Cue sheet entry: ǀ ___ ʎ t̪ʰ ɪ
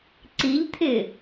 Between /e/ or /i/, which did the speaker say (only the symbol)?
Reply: i